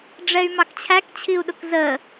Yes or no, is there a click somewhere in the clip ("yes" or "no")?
no